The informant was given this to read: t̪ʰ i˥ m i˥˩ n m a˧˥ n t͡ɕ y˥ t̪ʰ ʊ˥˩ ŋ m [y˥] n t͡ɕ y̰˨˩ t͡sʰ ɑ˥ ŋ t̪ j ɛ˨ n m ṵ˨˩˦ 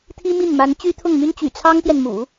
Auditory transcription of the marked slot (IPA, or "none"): y˥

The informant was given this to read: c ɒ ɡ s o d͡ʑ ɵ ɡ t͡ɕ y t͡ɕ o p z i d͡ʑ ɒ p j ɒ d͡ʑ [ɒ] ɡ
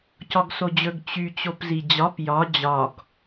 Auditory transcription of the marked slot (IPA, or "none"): ɒ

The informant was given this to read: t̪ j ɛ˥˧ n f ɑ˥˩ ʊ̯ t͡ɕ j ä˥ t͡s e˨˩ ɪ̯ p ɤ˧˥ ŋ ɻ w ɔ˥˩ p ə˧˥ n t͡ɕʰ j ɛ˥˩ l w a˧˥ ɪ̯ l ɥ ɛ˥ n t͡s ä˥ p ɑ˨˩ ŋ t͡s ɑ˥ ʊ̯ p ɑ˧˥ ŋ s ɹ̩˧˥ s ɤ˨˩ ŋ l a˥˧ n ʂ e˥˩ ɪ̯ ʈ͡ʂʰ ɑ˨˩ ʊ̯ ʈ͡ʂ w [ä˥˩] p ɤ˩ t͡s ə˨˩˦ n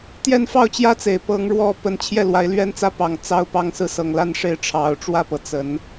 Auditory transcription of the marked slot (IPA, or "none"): ä˥˩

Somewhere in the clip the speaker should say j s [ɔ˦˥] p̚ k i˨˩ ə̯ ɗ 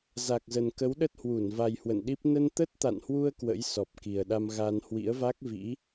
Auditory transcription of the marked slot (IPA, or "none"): ɔ˨˩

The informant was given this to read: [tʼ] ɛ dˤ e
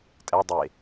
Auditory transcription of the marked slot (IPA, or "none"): tʼ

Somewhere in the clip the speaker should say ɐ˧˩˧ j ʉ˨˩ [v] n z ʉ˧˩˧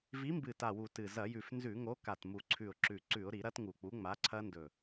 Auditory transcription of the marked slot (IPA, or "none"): f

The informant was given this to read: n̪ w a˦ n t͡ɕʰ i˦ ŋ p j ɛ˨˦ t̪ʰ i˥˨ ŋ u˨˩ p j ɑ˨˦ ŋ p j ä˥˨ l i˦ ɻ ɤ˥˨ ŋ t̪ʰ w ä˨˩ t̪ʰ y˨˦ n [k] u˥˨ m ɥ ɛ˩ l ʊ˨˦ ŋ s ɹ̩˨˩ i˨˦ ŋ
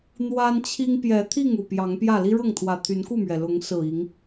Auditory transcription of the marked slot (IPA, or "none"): k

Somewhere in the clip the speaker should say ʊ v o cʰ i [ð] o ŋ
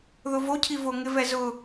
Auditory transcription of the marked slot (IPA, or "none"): v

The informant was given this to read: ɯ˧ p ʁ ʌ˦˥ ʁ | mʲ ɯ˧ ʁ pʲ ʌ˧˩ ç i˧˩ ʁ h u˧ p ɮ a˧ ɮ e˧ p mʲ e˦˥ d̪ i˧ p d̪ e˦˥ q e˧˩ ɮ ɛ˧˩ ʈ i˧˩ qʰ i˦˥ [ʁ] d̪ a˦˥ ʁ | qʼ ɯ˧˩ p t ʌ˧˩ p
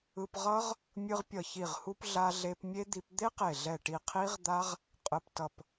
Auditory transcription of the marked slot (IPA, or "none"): ʁ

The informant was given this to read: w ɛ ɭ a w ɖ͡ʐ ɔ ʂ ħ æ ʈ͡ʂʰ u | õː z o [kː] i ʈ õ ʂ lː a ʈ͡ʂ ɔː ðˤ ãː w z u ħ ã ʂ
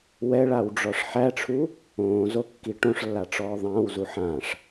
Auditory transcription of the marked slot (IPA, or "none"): kː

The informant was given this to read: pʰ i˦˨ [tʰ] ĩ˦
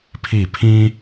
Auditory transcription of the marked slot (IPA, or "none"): pʰ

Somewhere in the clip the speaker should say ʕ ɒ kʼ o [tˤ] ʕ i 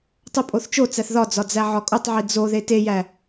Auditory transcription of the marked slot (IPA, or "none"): tˤ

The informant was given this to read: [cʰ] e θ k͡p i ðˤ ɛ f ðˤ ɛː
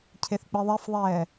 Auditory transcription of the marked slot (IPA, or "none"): cʰ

